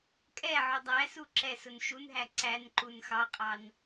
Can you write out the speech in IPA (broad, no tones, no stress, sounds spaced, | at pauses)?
kʼ ɛ ʕ ʊ dˤ æ s u ǁ ɛ s ʊ n ʃ u n ɦ æ ǀ æ n ǃ u n x ɑ qʼ ɑ n